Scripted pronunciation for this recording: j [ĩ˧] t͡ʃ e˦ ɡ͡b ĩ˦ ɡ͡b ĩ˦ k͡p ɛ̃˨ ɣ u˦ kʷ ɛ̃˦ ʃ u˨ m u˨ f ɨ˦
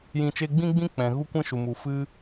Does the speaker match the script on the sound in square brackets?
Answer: yes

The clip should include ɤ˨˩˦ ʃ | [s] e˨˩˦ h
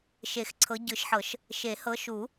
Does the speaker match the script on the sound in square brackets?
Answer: no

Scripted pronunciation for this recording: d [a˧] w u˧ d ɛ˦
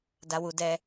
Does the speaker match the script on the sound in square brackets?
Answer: yes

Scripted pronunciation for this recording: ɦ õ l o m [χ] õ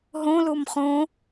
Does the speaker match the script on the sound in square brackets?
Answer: yes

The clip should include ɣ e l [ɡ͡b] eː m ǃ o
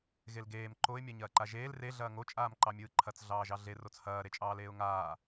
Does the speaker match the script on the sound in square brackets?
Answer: no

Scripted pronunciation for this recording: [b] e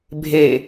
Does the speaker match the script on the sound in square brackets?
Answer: no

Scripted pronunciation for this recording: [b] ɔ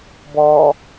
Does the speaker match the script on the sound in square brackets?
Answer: yes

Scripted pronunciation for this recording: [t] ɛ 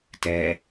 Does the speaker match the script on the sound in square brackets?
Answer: yes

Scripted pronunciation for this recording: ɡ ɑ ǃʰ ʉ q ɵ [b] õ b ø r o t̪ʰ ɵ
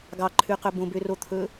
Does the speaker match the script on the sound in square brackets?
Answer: yes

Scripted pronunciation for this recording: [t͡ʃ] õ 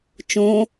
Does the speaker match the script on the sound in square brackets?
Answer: yes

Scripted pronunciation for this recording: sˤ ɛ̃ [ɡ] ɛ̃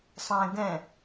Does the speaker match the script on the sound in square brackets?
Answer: yes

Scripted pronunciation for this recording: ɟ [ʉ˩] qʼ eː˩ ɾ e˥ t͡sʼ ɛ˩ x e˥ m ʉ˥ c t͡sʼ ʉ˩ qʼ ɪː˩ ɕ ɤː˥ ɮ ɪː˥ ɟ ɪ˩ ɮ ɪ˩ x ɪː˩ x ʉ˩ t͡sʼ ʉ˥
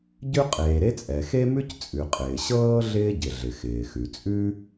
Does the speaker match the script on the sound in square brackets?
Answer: no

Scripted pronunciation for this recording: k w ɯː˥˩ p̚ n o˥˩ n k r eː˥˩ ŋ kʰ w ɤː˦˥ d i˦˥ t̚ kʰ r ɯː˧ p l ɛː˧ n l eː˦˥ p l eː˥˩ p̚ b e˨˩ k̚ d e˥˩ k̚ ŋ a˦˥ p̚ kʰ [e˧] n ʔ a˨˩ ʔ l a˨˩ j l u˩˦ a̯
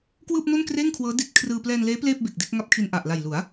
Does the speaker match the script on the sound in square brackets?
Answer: no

